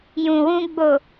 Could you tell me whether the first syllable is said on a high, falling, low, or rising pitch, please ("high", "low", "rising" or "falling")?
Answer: low